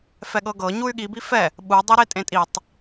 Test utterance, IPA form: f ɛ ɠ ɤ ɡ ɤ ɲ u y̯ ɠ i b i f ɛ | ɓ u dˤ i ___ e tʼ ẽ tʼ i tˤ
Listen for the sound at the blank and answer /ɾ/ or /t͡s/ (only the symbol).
ɾ